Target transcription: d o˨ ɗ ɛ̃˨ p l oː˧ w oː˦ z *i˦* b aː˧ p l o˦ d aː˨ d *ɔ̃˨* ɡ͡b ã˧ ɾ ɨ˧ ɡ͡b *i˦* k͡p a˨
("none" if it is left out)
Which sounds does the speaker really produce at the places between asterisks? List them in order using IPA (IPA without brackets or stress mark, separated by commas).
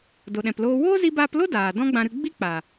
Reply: i˧, ɔ̃˦, i˦